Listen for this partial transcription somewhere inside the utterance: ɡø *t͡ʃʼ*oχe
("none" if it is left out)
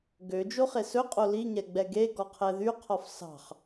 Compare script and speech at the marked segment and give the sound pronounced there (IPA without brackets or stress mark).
d͡ʒ